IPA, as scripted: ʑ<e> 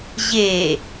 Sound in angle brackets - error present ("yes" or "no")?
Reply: no